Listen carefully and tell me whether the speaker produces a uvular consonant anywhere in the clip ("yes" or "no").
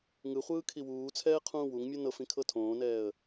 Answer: yes